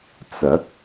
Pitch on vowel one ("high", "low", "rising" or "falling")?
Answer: rising